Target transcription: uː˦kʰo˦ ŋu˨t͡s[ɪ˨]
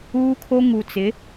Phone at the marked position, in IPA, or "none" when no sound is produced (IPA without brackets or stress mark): ɪ˨˦